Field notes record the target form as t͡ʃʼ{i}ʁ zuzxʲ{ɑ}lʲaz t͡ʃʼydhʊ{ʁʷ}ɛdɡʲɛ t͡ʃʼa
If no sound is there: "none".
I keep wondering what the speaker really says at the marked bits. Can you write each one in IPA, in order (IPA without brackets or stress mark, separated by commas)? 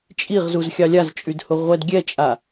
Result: i, ɑ, ʁʷ